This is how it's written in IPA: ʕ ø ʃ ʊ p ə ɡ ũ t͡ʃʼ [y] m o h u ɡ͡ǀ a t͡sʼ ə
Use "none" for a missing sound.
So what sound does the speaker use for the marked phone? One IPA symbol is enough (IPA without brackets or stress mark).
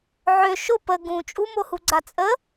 u